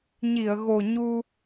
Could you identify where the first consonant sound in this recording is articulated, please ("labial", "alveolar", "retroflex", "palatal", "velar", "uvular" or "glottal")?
palatal